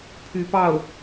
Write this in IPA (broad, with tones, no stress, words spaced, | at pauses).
pʰy˧˥pɑ˥˩ʊ̯